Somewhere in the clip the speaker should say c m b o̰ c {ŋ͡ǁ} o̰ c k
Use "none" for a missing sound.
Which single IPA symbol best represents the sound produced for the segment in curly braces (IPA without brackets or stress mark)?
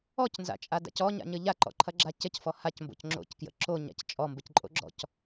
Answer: ŋ͡ǁ